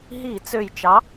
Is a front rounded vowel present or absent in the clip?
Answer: present